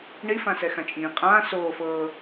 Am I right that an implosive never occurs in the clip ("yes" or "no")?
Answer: yes